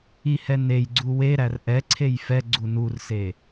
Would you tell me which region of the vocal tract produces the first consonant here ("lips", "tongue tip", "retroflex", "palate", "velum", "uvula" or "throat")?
throat